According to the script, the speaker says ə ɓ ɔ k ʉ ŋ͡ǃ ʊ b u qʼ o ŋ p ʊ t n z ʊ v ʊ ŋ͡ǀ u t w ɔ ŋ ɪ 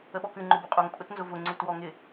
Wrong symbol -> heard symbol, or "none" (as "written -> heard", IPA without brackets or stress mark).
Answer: p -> pʼ